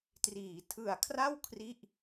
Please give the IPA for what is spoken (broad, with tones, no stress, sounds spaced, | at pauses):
t r iː˩˦ tʰ ɯ˨˩ a̯ kʰ r a˥˩ w kʰ r i˥˩ ʔ